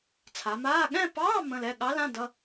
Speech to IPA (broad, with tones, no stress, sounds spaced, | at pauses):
t͡sʰ a˩˧ m aː˧˥˧ ɠ ɛ̃˥˧ p ɑː˧˥˧ m ə̃˧˥˧ l ɛ˧˥˧ ɠ ɑ˧˥ l ã˧˥˧ d ʌ˧˥˧